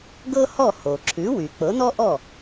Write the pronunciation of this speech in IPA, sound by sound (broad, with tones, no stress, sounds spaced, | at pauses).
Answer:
ɡ ɤ˥ h ɔ˥˩ h o˩ ǁʰ ʉ˩˥ w y˩ k͡p ɤ˩˥ n ɔ˥ ʔ ɔ˥˩